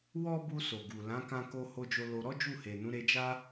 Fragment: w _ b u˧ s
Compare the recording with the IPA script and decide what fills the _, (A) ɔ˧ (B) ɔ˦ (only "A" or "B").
B